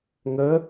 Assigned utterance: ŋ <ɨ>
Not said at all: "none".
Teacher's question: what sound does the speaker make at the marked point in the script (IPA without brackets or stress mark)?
ə